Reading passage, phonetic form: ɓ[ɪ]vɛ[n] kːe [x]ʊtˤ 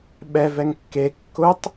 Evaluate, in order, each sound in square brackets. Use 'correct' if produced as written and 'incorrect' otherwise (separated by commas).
incorrect, incorrect, incorrect